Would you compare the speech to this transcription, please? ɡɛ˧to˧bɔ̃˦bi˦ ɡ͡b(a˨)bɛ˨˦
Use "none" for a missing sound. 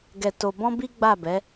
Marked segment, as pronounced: a˦˨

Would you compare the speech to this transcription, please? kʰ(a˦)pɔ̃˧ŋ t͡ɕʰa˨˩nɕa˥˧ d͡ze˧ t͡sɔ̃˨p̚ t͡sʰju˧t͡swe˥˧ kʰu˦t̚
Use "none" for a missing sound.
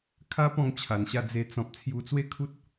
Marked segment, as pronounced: a˦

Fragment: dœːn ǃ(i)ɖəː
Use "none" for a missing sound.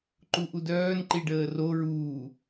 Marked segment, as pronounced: i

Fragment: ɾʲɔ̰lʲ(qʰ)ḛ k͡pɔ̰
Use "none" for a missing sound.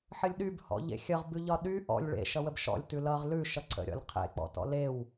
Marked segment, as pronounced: qʰ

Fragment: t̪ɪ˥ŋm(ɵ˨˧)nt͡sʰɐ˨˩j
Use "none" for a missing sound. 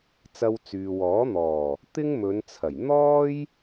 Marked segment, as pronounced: ɵ˨˧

